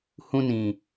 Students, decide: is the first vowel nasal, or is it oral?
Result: nasal